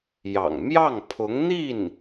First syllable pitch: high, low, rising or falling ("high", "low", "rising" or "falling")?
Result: low